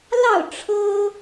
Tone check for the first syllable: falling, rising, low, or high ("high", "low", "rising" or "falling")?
falling